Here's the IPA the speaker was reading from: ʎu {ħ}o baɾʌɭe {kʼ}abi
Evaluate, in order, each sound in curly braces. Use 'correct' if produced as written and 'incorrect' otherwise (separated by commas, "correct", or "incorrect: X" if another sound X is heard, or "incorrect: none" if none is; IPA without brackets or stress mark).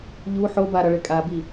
correct, correct